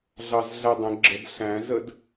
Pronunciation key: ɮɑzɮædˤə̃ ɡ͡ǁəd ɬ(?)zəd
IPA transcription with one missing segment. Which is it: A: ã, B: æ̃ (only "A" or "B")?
B